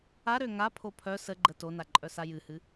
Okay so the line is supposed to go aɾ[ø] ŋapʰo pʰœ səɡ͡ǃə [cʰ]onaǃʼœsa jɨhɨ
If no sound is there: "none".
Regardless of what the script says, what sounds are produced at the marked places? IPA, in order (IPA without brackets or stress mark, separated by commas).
ø, t